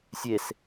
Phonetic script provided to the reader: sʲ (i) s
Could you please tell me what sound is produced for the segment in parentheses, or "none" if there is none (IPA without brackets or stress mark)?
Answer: e